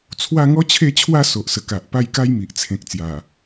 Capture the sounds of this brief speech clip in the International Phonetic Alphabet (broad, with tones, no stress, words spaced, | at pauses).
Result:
t͡sʰwa˥˧ŋɔ˦t͡ɕʰe˥˧t͡ɕʰwa˥˧ so˨ʔsə˨˩ka˨ʔ pa˥˧jka˦jmi˨ʔ t͡sʰẽ˨k̚t͡sja˨˩